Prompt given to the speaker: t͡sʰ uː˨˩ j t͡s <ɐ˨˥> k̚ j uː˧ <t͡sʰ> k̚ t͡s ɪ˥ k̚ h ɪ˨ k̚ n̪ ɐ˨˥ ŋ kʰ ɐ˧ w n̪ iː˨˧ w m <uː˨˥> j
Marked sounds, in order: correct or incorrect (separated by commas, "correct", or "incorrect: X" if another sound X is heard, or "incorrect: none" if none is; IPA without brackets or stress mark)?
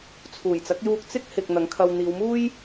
correct, incorrect: none, incorrect: uː˥